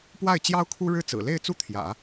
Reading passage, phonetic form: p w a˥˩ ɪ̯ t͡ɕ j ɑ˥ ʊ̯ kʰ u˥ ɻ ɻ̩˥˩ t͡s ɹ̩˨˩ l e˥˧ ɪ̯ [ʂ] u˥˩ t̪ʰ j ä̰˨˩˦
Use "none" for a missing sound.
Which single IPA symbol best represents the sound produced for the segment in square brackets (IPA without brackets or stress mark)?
t͡s